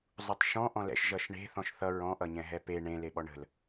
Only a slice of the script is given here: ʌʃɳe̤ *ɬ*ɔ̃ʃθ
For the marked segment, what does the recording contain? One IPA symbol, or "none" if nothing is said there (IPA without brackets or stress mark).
θ